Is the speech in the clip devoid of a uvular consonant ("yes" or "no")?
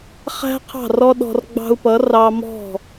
no